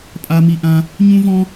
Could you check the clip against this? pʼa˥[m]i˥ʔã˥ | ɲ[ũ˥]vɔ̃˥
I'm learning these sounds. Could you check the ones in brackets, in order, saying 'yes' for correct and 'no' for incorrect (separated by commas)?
yes, yes